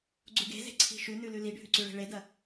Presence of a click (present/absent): present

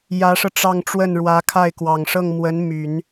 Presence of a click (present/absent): absent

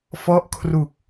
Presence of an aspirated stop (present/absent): present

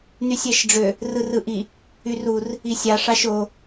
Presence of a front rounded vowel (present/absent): present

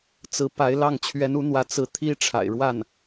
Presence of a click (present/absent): absent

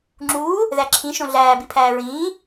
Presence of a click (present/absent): present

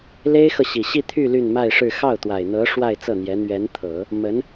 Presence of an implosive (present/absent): absent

